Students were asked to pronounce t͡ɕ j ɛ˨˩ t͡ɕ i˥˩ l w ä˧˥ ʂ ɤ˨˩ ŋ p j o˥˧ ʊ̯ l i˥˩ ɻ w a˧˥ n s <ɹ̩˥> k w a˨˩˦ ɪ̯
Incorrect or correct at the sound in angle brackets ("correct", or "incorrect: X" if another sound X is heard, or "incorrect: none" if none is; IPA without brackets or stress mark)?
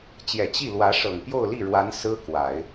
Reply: correct